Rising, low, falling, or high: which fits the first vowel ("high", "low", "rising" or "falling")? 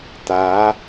rising